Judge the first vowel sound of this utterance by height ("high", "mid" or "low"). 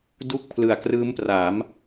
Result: high